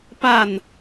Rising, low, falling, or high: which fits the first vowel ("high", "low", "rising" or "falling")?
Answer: falling